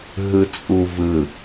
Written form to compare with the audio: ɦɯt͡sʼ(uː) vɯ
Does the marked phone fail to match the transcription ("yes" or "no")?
yes